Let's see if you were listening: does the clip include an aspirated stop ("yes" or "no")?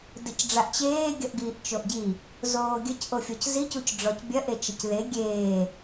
no